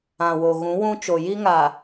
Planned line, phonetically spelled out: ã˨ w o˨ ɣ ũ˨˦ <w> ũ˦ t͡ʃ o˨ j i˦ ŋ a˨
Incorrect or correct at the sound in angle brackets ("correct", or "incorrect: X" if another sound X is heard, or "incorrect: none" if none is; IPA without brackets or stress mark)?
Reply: correct